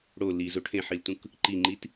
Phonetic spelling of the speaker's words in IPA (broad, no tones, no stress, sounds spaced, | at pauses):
ɽ o l i z o ʈʰ ẽ ħ i l t ũ k | ǃ i ŋ͡ǃ i t